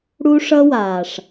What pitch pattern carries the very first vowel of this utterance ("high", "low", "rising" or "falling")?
high